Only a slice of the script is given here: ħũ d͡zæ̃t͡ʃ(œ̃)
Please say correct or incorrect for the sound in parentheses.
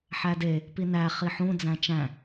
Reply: incorrect